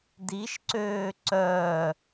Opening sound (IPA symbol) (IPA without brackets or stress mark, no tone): d